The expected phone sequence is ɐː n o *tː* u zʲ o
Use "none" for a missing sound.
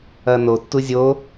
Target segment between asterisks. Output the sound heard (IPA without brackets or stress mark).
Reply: tː